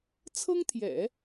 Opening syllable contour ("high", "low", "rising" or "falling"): high